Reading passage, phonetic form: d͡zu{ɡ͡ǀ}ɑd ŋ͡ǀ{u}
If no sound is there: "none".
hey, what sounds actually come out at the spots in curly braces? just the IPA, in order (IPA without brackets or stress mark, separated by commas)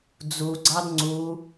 ɡ͡ǀ, u